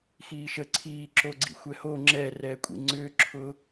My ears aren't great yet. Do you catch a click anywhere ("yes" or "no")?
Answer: yes